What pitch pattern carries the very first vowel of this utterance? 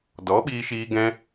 rising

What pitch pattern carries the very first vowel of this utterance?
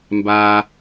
low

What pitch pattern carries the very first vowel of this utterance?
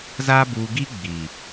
high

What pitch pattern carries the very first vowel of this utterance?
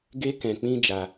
high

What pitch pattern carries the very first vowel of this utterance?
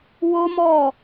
high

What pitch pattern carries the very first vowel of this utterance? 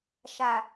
low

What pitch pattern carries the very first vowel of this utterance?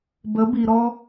rising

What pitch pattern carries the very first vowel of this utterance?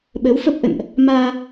rising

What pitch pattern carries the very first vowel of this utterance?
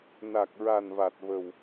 low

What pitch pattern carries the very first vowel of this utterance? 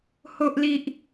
high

